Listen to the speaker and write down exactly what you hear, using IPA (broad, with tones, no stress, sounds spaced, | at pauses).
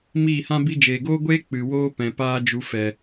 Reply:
m iː˦˨ h ã˦ b i˧ d͡ʒ eː˨ ɡ oː˦ ɡʷ eː˦ k͡p ɨ˨ w oː˦ p ɛ̃˨ p aː˦ d͡ʒ u˧ f ɛ˨